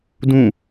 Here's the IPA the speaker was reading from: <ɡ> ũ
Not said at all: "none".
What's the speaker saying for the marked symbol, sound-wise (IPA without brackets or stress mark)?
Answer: d